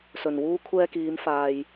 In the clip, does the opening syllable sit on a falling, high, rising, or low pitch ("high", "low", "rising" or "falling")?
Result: low